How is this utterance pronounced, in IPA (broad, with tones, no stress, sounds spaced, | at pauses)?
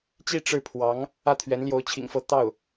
t͡ɕ i˥˧ ʈ͡ʂ ɻ̩˥˩ pʰ w ɑ˧˥ ŋ | ä˥˩ t̪ʰ ɥ ɛ˧˥ n l j o˧˥ ʊ̯ t͡ɕʰ ḭ˨˩ ŋ f ɤ˥˧ t̪ ɑ˥˩ ʊ̯